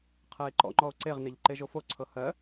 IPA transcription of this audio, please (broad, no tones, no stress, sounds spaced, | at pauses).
qʰ ɜ e̯ ǃ ɔ̰ ŋ͡ǃ ɔ o̯ ǀ e ʁ n e ʎ ǃ e ʒ o f o ǀʰ ɤ h ɜ